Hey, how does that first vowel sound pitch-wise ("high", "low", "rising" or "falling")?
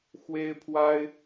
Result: high